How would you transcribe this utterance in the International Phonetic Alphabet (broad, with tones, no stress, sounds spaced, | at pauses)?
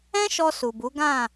ɛ̃˦ ʃ ɔ˧ s u˨ b u˨˦ ɡ ã˦˨